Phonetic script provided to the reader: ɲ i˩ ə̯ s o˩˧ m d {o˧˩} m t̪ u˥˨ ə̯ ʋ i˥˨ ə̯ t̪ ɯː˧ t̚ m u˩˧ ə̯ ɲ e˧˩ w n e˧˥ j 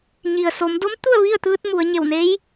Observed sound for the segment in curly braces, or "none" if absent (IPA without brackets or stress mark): o˧˥